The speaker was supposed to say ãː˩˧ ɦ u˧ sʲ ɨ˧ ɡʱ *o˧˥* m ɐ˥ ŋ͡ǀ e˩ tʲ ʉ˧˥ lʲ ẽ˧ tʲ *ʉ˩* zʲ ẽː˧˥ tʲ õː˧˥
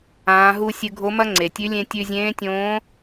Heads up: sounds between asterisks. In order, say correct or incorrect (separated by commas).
correct, incorrect